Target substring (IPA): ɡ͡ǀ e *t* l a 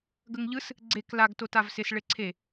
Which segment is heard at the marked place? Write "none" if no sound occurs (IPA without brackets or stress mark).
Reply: k